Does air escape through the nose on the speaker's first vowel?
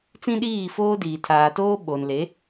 yes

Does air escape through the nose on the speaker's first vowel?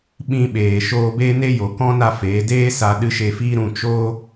yes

